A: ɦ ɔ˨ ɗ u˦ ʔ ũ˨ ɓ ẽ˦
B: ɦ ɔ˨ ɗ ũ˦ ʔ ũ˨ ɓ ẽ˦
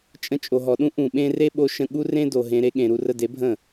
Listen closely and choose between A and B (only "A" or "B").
B